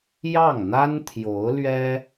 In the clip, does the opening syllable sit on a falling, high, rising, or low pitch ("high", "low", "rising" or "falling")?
falling